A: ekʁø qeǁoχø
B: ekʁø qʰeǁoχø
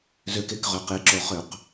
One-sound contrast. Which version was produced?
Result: A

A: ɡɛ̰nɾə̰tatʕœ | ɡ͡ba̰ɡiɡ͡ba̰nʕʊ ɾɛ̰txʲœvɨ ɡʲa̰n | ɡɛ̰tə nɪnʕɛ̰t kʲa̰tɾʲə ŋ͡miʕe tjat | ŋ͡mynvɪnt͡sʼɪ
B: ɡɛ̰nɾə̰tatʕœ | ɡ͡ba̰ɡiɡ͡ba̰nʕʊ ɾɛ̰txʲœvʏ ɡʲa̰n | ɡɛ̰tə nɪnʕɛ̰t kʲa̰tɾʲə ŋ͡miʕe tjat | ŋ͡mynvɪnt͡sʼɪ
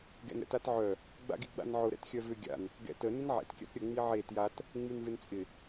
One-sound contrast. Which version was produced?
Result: B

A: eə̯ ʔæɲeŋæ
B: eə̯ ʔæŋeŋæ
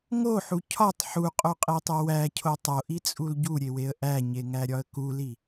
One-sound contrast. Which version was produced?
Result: A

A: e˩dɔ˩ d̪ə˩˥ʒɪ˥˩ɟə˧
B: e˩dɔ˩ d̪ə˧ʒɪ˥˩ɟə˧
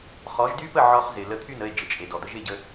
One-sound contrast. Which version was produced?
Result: B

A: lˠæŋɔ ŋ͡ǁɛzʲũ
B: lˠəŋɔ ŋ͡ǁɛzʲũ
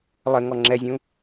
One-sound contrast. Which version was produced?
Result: B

